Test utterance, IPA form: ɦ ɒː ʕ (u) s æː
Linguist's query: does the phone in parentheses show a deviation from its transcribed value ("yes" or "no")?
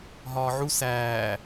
no